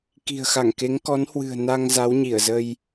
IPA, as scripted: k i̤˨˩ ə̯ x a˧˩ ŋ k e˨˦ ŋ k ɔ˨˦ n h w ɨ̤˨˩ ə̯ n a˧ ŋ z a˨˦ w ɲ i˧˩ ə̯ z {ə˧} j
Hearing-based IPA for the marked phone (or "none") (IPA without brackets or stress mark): ə˧